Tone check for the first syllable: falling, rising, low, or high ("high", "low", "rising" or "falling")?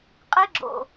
high